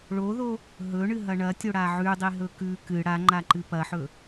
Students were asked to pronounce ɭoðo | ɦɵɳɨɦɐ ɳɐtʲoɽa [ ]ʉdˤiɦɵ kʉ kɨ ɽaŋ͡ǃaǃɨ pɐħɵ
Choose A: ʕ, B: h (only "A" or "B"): A